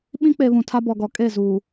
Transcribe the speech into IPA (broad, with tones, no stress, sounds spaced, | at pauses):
ɓ ĩ˦ k͡p e˨ β ũ˨ tʰ a˦ b ɔ˨ ɡ ɔ˨ kʼ e˦˨ z uː˨